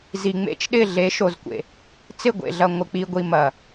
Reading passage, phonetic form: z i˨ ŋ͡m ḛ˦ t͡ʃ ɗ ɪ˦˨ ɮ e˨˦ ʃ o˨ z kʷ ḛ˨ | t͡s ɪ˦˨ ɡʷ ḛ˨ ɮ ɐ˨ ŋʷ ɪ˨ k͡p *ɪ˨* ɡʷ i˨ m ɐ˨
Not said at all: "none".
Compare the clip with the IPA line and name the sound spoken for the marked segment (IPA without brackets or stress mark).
i˨